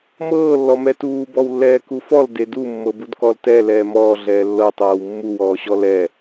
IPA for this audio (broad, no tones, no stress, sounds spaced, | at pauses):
m ɤː lː ɔ m ɛ t uː b ɔ w lː ɛː k u f ɔ l d e d u mː ɤ b u d k ɔ l t ɛ l ɛː m ɔː ɮ ɛː lː ɤ tˤ ɤː w mː u w ɔː ɕ ɔ l ɛ